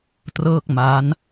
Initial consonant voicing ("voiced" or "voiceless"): voiceless